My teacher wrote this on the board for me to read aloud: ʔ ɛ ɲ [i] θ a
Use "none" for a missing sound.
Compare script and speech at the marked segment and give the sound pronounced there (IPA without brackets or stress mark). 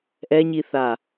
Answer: i